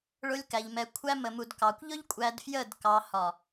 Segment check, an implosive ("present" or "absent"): absent